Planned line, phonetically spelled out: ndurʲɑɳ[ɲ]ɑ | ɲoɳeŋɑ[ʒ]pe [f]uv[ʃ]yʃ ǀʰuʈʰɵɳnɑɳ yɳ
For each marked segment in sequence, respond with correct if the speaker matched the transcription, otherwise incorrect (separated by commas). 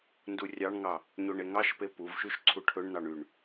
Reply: incorrect, incorrect, incorrect, correct